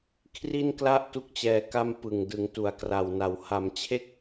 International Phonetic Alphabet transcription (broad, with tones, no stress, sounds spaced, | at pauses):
kʰ r i˥˩ n k l a˥˩ ʔ t u˥˩ k̚ t͡ɕ ɛː˧ k a˥˩ m p ɯ˨˩ ŋ d ɯ˩˦ ŋ t u˩˦ a̯ k r a˨˩ w n a˩˦ w h a˩˦ m t͡ɕʰ e˥˩ k̚